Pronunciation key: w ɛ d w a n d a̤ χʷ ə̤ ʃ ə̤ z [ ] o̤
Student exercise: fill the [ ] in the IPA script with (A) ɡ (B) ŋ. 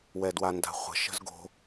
A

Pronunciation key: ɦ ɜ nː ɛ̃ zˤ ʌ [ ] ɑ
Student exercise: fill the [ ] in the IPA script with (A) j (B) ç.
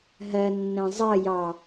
A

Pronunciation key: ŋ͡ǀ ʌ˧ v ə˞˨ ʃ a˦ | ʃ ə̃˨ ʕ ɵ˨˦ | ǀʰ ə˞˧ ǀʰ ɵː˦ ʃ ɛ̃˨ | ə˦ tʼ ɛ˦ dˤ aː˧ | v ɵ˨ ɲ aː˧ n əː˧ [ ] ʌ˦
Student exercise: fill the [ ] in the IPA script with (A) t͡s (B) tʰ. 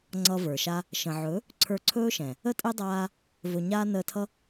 B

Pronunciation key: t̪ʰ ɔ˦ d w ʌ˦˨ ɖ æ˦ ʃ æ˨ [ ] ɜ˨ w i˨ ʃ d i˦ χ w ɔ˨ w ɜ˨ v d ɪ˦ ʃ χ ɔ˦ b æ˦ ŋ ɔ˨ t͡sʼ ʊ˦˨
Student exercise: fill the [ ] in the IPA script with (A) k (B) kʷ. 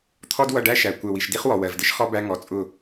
B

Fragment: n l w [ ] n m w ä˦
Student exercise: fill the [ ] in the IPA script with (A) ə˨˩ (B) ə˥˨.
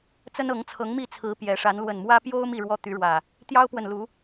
A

